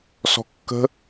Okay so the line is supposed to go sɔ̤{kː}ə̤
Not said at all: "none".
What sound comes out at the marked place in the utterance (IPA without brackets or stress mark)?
kː